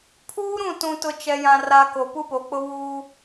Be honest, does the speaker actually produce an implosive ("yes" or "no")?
no